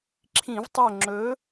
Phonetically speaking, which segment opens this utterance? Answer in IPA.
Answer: ǁʰ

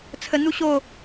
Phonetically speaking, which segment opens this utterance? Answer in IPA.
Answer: t͡sʰ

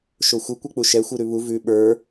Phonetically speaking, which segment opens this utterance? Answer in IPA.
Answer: ʃ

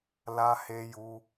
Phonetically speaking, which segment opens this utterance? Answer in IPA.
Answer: l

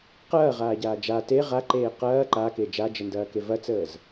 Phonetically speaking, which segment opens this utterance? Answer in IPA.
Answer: q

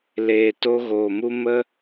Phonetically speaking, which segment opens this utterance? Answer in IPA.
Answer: l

